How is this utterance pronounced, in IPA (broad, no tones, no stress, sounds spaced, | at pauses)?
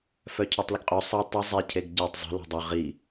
f œ cʰ ɔ tˤ l ə ɡ qʼ ø sˤ ɛ tˤ ə zˤ e cʰ e ɡ ɟ a tˤ zˤ ə̤ l ɔ̤ dˤ ø ʁ i